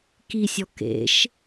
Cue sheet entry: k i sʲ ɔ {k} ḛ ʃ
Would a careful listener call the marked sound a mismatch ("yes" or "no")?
no